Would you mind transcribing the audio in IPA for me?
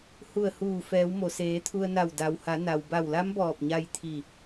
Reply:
h u˧˩ ə̯ h uː˧˩ f ɛː˩˧ w m o˩ s eː˩˧ t̪ʰ u˧ ə̯ n a˧˩ w d a˩ w h a˩˧ n a˩ w b a˧˩ w l a˧˥ m b ɔː˧˩ p̚ ɲ a˧ j t̪ʰ i˧˩

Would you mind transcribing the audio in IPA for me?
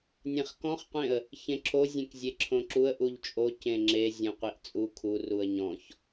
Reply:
nʲ ẽ χ k ɔ̃ χ qʷ ẽ ə̯ | ç ẽ ǁʰ o zʲ ẽ k zʲ e ǁʰ õ ǁ u ə̯ ʔ u ʎ t͡ʃʼ o c ẽ ŋ͡ǁ e zʲ õ qʷ i ʔ t͡sʼ u kʰ u r u ə̯ ɲ ɔ̃ ç

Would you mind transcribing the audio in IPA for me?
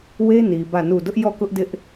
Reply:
w e˦ n i˨ b ä˦˨ n u˦˨ d ʊ˦ ʔ j ɔ˦˨ k ʊ˦ ʔ d ɪ˦ ʔ

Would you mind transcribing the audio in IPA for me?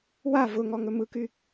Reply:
w a v ʊ ŋ ɔ ŋ ɵ m ɯ k y

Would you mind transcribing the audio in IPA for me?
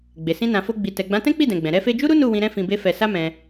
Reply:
ɡ͡b e˨ s ĩ˧ n ã˨ f o˧ ɡ͡b i˨ t ɛ˨ ɡ͡b ã˨˦ t ɛ̃˦ k͡p i˦˨ d ɛ̃˨ ɡ͡b ɛ̃˨ ɾ ɛ˧ f e˧ d͡ʒ u˦ ɾ u˦ n u˦˨ w ĩ˧ ɾ ɛ̃˦ f ĩ˧ b e˦ f ɛ˧ s a˦ m ɛ̃˧

